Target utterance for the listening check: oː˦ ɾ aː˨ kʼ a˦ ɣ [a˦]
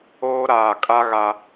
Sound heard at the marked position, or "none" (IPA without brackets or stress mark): a˦